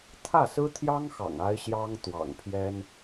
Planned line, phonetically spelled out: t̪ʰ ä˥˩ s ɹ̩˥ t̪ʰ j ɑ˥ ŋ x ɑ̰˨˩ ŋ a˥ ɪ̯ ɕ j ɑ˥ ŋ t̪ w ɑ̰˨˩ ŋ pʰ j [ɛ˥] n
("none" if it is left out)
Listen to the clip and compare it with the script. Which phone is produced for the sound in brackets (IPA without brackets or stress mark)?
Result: ɛ˥